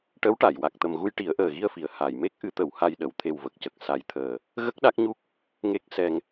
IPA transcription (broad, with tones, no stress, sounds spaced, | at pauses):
ʈ ə˧˥ w ʈ a˨˩˨ j w a˨˩ k̚ t̪ ə˨˩ m ɣ u˧ j ʈ i˨˩˦ ə̯ ʔ əː˨˩ ɣ i˧ ə̯ f i˨˩˨ ə̯ h a˨˩˨ j m e˦˥ k̚ ʔ ɨ˧˥ t̪ ə˨˩˦ w h a˧ j ɗ ə˨˩˨ w t̪ʰ e˨˩ w v ə˨˩ k̚ c ə˨˩ k̚ s a˨˩˦ j t̪ʰ əː˨˩ | ɣ ə˦˥ k̚ ɗ a˦˥ k̚ ɲ u˦˥ k̚ | ŋ e˦˥ k̚ s ɛ˧ ŋ